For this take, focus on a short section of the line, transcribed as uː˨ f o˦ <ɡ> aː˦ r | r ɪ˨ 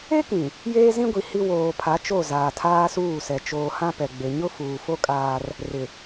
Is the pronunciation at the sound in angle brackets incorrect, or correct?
incorrect